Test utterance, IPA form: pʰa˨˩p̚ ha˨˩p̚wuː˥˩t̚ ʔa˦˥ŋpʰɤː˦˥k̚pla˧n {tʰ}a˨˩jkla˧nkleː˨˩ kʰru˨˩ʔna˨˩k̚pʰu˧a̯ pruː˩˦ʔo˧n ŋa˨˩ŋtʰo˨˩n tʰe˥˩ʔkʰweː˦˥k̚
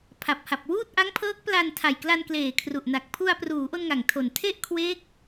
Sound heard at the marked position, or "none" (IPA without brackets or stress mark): tʰ